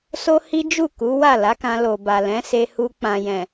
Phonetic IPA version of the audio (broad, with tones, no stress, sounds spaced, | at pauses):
s o˦ h i˦ d͡ʒ u˦˨ k u˨˦ w a˦˨ l a˨˦ k ã˧ l o˨ b a˨ l ɛ̃˨˦ s e˧ h u˧ k͡p ã˨ j ɛ̃˨